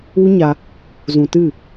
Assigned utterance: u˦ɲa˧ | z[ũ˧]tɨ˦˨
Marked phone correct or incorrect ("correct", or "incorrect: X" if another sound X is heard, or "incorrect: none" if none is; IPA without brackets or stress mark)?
correct